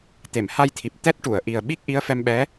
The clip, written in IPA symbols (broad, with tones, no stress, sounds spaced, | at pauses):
t̪ e˨˩˨ m h a˧ j t̪ʰ i˨˩ p̚ t̪ ɛ˦˥ t̚ ʈ u˨˩˨ ə̯ ʔ i˨˩ ə̯ ɓ i˦˥ k̚ ʔ i˧˥ ə̯ f ɛ˧ m ɓ ɛ˧˥